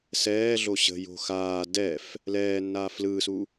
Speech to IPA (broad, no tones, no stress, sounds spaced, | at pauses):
s ɛː ɮ o ɕ ə̤ j o̤ x aː d ɛ f | l ɛː nː aː f l ɯː s u